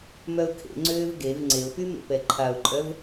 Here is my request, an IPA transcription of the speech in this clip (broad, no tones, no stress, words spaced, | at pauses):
mœʊ̯kʰḛŋ͡ǀøːv ɡev ŋ͡ǀeʊ̯py mḛpɛǃʰaʊ̯ǃʼœv